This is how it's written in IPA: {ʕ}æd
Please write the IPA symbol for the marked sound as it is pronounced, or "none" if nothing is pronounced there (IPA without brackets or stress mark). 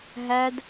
ɦ